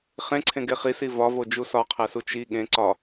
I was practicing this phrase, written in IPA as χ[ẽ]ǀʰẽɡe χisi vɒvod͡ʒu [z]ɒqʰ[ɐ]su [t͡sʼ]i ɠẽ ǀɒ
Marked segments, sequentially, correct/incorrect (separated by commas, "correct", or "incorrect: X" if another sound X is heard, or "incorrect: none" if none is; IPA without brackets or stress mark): correct, incorrect: s, incorrect: æ, incorrect: t͡ʃ